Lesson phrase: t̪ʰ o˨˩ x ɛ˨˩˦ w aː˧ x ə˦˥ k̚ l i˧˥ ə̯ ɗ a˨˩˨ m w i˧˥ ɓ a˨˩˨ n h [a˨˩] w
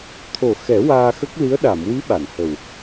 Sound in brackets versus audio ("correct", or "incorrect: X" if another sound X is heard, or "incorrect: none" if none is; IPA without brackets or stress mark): incorrect: ə˨˩